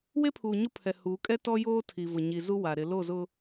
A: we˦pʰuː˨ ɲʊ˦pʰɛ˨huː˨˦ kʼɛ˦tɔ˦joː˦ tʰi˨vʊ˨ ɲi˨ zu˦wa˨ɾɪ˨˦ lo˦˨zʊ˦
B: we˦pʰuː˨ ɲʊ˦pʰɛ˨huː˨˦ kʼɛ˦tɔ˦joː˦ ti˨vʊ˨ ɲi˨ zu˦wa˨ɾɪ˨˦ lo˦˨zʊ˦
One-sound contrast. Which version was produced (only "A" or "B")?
A